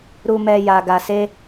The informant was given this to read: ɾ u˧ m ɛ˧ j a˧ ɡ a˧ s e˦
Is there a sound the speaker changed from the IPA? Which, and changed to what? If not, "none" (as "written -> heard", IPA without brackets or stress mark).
none